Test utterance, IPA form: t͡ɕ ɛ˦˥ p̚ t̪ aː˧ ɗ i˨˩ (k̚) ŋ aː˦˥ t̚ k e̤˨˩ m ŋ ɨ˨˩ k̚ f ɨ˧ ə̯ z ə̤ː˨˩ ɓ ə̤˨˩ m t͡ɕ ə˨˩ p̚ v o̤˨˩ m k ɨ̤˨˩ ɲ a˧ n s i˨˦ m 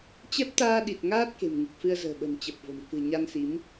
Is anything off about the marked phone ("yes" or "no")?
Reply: yes